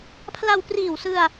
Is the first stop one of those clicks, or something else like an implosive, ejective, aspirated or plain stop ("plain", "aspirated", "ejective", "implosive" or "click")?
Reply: aspirated